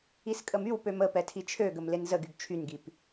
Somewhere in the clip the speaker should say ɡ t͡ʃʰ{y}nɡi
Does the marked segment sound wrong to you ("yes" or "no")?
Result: no